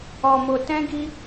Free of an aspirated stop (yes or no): yes